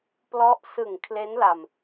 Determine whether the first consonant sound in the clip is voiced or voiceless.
voiceless